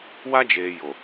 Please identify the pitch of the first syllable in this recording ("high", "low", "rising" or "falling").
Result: high